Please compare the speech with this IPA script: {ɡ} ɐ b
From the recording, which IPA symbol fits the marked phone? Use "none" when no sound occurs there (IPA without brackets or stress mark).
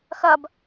x